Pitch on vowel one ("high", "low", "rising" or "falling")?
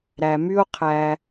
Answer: low